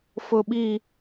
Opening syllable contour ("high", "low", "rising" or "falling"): high